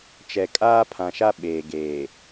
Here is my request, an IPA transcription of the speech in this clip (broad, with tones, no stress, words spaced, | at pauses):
t͡ʃɛ˨kʼaː˦pʰã˨ʃa˦ ɓeː˨ɡeː˨